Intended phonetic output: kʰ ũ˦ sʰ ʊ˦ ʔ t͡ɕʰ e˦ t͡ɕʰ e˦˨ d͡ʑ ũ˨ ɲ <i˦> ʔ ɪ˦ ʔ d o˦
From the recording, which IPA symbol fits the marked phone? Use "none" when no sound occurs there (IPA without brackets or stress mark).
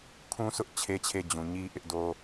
i˦